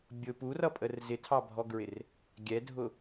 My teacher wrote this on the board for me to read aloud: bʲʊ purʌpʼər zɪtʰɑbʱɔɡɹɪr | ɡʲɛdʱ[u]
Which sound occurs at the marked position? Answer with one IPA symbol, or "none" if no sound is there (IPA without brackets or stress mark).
ʊ